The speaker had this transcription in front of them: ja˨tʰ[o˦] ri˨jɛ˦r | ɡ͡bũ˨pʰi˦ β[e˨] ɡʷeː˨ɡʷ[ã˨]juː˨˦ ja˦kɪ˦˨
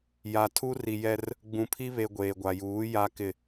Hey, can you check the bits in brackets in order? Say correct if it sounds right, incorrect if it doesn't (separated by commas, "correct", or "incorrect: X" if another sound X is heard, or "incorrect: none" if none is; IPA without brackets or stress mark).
incorrect: u˦, correct, incorrect: a˨